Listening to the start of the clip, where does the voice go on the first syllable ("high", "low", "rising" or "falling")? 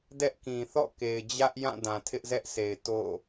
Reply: high